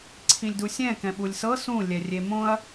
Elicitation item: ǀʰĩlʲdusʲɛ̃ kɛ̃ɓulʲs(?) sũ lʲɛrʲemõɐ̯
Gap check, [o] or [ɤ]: ɤ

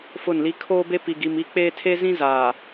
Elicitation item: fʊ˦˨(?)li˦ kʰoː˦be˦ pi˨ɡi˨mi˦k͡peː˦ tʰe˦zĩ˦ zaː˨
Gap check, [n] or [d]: n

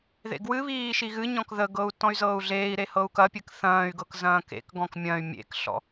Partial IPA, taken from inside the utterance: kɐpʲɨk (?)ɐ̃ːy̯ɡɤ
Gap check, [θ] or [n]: θ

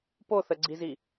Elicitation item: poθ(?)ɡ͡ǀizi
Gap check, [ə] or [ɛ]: ə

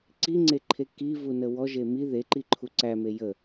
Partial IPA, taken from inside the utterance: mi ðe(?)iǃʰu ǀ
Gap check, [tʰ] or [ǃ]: ǃ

